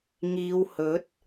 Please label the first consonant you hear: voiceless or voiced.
voiced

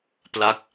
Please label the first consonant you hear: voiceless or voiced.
voiceless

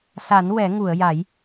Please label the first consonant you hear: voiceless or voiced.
voiceless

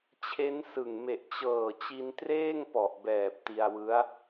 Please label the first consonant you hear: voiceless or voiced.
voiceless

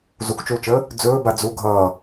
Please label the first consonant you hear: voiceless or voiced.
voiced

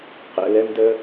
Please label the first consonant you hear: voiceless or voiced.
voiceless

